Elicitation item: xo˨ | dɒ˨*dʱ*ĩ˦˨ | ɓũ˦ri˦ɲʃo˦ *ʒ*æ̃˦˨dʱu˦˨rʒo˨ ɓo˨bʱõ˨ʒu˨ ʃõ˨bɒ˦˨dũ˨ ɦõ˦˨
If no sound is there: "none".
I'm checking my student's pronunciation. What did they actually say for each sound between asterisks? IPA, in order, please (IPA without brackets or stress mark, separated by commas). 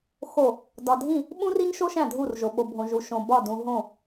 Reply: dʱ, ʃ